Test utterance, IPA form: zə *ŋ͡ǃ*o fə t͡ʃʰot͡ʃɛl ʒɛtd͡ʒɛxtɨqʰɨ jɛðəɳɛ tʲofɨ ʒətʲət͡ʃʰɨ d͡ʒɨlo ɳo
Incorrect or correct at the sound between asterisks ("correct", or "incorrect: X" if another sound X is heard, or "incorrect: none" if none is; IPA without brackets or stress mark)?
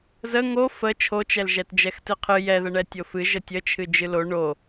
incorrect: ŋ